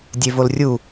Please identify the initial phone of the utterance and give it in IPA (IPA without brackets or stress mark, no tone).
dʲ